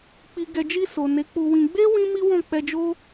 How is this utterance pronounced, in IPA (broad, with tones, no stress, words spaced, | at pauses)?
k͡pi˨ɡɛ˨d͡ʒi˧ so˨ne˨˦k͡pu˧wĩ˧ ɡ͡be˦ wĩ˦mi˦wɔ̃˦˨ k͡pɛ˧d͡ʒo˦